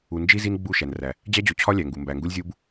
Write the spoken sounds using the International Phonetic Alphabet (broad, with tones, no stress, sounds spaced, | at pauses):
u˨ n d͡ʒ i˦ z i˦ n ɡ͡b u˦˨ ʃ æ˨ n r æ˨ | d͡ʑ æ˦ d͡ʑ o˨ t͡ɕʰ ɒ˦ lʲ æ˨ ŋ ɡ u˨ m b æ˨ ŋ ɡ u˦ lʲ zʲ u˦ b